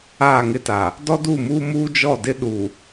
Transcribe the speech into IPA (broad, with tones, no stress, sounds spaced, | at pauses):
aː˦˨ ŋ ɪ˦ t a˨ | d ɔ˦ d uː˦˨ m uː˦ m uː˦ d͡ʒ ɔ˦˨ d ɪ˦ ɗ u˨